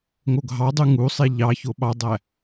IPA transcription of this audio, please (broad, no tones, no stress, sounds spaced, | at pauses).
ŋ o ɡʱ ɑ dˤ y ŋ u sˤ e ʎ ɑ ç o ɓ ɑ dˤ æ